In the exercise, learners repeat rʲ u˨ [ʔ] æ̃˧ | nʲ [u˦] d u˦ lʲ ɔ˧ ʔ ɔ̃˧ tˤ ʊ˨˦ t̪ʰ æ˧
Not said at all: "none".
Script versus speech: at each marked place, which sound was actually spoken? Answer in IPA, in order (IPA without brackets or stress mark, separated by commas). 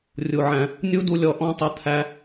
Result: ʕ, u˦